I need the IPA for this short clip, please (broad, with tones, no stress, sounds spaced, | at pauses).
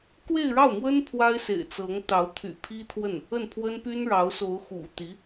k w e˥˧ ɪ̯ ɻ ɑ˥˩ ʊ̯ m w ə˥ n pʰ w a˥ ɪ̯ s ḛ˨˩ ɪ̯ t͡s ɤ˧˥ ŋ t̪ ɑ˧˥ ʊ̯ t̪ʰ y̰˨˩ pʰ i˥ t̪ʰ w ə˥˩ n | ə˥˩ n pʰ w ə˥ n p y˥ n ɻ ɑ˧˥ ʊ̯ s o˧˥ ʊ̯ x ṵ˨˩ t̪ i˧˥